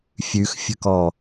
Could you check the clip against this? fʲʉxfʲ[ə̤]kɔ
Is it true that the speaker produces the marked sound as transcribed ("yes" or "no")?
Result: yes